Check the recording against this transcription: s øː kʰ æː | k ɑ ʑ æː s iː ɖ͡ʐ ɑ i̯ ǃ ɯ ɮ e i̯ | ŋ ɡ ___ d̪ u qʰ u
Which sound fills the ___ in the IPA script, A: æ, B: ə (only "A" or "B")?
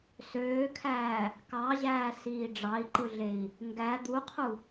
A